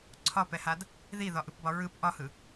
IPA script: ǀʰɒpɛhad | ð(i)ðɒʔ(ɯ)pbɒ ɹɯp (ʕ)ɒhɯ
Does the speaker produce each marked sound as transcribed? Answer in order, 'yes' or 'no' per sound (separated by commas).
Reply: yes, yes, no